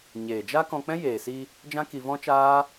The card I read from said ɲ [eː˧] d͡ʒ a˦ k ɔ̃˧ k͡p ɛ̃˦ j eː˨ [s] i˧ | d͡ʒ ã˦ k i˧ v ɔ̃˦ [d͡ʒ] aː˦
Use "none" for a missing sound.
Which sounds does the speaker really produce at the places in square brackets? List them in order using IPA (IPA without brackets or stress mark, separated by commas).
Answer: eː˨, s, t͡ʃ